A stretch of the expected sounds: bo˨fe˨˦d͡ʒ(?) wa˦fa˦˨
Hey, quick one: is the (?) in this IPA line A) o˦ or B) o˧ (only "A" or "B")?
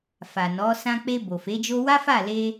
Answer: A